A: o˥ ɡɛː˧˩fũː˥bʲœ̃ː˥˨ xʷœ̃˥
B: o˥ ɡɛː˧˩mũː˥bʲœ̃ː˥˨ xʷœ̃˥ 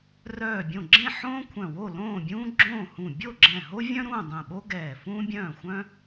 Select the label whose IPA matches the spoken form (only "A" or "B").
A